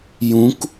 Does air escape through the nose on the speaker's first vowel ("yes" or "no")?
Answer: yes